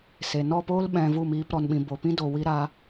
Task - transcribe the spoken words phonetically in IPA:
se˨nɔ˦˨poː˦l ɓɛ̃˧vu˦˨miː˧p ɾɔ˨nɓĩ˨ bo˨pĩ˦do˨wi˧ ɾa˧

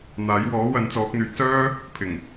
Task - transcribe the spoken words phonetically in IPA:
n̪aː˨˥j wɔː˨˥ wɐ˨˥nt͡sɔː˨˥k̚n̪yː˨˥t̚ sœː˥ | pʰɪ˨˩ŋ

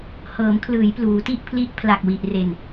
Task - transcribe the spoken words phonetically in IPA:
hɤː˩˦mkʰlɯː˩˦j pluː˩˦ti˥˩ʔpʰli˦˥ʔ pʰla˨˩k̚wi˨˩ʔre˨˩n

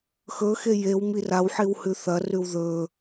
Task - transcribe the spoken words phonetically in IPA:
xɵxe jew mirawħiw hʉθɐrʉw ðɵ

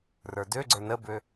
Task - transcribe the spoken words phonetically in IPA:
rə˞døɡ͡ǀə˞ nəbø

